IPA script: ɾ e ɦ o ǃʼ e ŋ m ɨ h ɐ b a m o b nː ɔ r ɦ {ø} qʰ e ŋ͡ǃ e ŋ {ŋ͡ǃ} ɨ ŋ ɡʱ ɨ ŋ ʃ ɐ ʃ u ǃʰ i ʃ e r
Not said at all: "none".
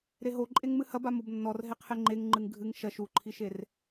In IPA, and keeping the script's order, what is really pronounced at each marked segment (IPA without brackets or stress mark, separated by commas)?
e, ŋ͡ǃ